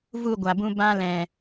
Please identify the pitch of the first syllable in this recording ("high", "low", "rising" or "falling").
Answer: falling